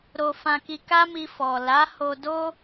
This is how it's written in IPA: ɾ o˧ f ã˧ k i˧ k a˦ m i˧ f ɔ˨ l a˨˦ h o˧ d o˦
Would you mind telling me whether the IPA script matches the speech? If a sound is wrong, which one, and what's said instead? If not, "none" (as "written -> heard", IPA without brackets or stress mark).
none